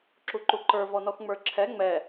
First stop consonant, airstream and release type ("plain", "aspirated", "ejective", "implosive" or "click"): click